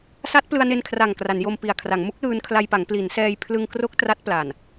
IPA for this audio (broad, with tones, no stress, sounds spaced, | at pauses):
s a˦˥ t̚ p l ɯ˧ a̯ n e˧ n kʰ r a˨˩ ŋ k r a˩˦ n j o˧ m p i˨˩ a̯ kʰ r a˩˦ ŋ m u˦˥ k̚ l ɯː˧ n kʰ l a˧ j p a˩˦ ŋ p l i˩˦ n s ɛː˧ j pʰ l ɯ˧ ŋ k r o˦˥ k̚ t r a˦˥ t̚ p l a˨˩ n